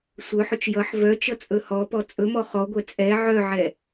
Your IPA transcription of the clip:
sʷ œ ħ ɵ t͡ʃ j ʌ ħ v œ t͡ʃ ʌ t͡sʼ ɵ h ɔ p ɔ t͡sʼ ɵ m ɔ χ ɔ ɡʷ ɛ t͡sʼ ɛ ʕ œ ʕ ɛ

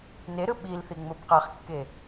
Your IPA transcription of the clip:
n e ɾ ɯ ɓ i l θ i ŋ͡m o b q a χ kː e

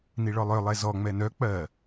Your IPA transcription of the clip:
n i ɭ ɔ lˠ œ lˠ ɛ z ɔ ŋ͡m ɛ n œ k͡p ɜ

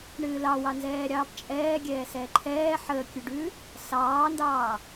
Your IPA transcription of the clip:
ɳ ɨː l ɑ w ɑ n z ɛː ɾʲ ɑː p t͡ʃʼ ɛː ɡʲ ɛː s ɛː ǃʰ ɛː ħ əː kʲ ʉ ɖ ʉː | s ɑː n d ɑː

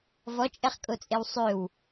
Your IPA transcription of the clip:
v ɔ t͡ʃʼ ɛ χ kʼ o t͡sʼ e w sˤ ø w

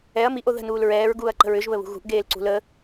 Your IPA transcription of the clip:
ɛ ɐ̯ m i ʔ o ð ə̤ n uː l ɹ ɛː ɹ ɡ uː ɐ̯ ǃ ə̤ ɹ ʏ ʒ β ə β ṳ ɣ ṳ ʔ ɡ eː l ǀ ṳ l ə

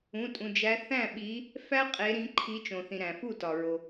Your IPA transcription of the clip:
ũ˩˧˩ tʼ ũ˩ d͡ʒ æ˨˦ θ æ̃˥˩ ɓ i˨˦ | f æ˦ qʼ e˨˦ ɾ ĩ˨˦ ǃʰ i˨˦ t͡ʃ õ˩ θ ĩ˩ ɾ æ̃˩ f u˥˩ t ɒ˩ ɹ o˩

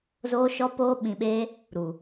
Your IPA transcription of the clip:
z oː˧ ʃ ɔ˧ p oː˧ ɓ ĩ˨ ɓ eː˧ | ɾ u˨

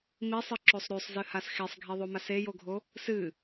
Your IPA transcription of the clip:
m i sˤ ɨ ǁ o sˤ ɾ ʉ sˤ z ɨ h a s x e sˤ ɡʱ i ðˤ o m a s e j o ɡʱ o | s ɨ

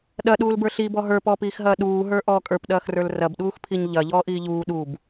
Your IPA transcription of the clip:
ɗ ɐ ɗ uː l b ə˞ ɬ i b ɔ ɦ ə˞ p ɔː p iː x ɦ ɐː ɗ uː ɦ ə˞ ʔ ɔː kʼ ə˞ p ɗ ɐː x r ə˞ l r ɐ b ɗ uː x pʰ i ɲ ʎ ɐ ʎ ɔː ʔ iː ʎ uː ɗ u b

